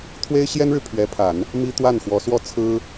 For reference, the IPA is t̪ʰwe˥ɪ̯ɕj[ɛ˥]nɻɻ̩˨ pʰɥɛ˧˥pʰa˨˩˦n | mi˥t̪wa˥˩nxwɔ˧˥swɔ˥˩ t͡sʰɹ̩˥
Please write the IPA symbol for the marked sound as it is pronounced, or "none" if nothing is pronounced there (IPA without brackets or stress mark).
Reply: ɛ˥